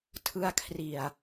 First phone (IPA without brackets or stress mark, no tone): tʰ